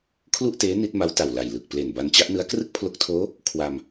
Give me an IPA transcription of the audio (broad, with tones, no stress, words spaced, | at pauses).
kʰlu˥˩ʔteː˦˥ ni˦˥t̚ma˦˥wta˨˩wla˨˩j lɯ˨˩k̚ple˨˩n ba˧nt͡ɕa˦˥ʔnɯ˦˥a̯ krɯ˥˩k̚pʰlo˦˥k̚tʰoː˦˥ | kʰwa˧m